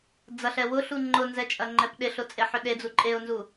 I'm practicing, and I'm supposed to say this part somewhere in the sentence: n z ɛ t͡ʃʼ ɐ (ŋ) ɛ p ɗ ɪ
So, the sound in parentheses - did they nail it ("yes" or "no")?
no